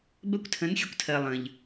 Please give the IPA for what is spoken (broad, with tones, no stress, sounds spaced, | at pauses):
b ɜ˦ kʷ tʰ ə̃˨˦ n xʲ ə˧ kʷ tʰ ɜ˨ lˠ ə̃˨ ʎ